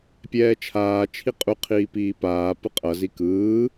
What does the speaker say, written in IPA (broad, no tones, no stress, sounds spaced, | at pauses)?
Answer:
pʲ ɛː t͡ʃʰ aː t͡ʃʰ i qʼ u qʰ iː p iː p aː p ɯ qʼ ʌ z i k ɯː